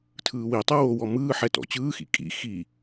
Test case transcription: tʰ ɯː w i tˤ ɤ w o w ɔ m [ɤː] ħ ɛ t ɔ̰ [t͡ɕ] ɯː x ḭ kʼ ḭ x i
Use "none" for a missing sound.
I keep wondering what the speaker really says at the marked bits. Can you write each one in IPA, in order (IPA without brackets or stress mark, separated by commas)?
ɯː, t͡ɕ